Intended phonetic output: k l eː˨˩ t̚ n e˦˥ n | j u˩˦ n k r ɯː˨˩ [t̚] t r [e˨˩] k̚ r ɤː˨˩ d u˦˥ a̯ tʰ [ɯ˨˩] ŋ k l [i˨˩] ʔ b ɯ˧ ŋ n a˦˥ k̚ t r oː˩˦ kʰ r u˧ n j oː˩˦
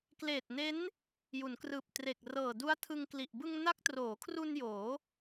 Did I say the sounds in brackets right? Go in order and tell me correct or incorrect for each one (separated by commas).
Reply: incorrect, correct, incorrect, correct